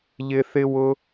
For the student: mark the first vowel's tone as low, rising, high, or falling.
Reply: high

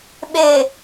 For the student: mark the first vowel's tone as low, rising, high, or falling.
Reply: low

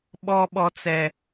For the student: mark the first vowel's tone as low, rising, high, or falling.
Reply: high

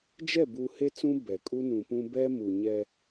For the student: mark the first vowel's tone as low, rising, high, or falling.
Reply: falling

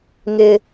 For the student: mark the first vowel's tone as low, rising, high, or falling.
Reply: high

